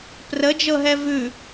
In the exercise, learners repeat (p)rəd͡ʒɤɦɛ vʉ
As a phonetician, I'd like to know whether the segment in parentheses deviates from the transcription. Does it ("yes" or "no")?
no